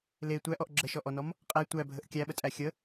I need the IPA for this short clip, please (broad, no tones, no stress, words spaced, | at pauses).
le tʷæʔɔʔ ɡ͡ǁəʃɔʔɔnɔm | qʼæ tʷæbʱəʔ kʲæɓətʼæ xʲə